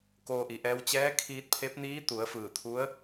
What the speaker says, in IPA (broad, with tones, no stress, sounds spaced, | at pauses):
k oː˧ ʔ i˩˧ ʔ ɛː˧˥ w t͡ɕ ɛː˧˥ kʰ iː˧ t̚ pʰ e˧˥ p̚ n iː˧˥ t̪ u˩˧ ə̯ f ɯː˧˩ t̪ʰ u˧˥ ə̯